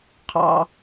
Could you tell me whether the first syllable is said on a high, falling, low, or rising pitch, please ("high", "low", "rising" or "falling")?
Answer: low